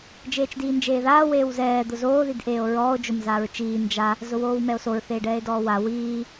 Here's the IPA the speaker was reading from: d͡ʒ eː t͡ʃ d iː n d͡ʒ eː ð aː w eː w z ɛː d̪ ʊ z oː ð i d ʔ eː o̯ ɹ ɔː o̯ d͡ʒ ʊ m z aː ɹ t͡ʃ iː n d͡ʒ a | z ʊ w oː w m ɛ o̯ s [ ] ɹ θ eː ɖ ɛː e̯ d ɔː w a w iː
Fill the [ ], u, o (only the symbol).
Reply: o